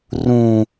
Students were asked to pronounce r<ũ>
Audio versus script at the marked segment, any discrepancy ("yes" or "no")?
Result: no